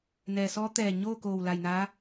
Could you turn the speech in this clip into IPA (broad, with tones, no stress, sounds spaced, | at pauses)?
n ɛː˩ s ɔː˧˥ t̪ ɛː˧˩ ɲ oː˥˨ k oː˧˩ w l a˧˩ j n aː˧˥